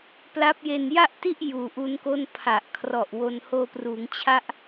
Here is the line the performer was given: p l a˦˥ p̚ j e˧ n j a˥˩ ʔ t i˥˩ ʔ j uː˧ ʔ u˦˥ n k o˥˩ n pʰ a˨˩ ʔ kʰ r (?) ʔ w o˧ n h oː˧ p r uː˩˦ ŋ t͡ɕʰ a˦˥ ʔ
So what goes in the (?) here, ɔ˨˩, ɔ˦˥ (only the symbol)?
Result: ɔ˨˩